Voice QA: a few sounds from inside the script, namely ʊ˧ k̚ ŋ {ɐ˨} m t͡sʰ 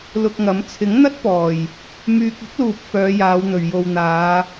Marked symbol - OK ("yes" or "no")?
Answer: no